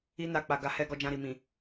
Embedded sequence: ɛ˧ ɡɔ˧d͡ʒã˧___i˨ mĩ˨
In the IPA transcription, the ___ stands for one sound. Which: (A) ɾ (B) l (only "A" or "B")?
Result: A